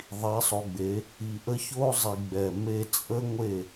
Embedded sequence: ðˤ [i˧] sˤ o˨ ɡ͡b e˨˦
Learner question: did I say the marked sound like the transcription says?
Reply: no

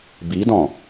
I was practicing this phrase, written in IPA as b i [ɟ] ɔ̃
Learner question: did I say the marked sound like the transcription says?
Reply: no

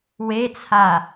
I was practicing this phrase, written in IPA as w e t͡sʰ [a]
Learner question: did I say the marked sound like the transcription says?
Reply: yes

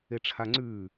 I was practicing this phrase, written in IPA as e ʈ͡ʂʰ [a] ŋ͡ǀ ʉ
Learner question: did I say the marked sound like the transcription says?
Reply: yes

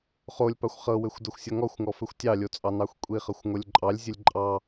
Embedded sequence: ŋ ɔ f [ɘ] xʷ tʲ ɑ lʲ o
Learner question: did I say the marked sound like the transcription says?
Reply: yes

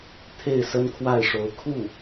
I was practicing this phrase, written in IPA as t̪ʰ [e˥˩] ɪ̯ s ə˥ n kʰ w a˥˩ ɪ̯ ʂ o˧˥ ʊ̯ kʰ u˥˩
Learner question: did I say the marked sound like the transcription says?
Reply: yes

